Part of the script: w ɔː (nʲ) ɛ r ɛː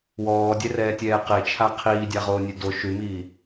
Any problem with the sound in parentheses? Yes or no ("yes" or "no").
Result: yes